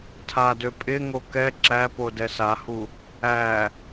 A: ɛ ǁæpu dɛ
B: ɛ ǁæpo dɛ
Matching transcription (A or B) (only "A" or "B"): B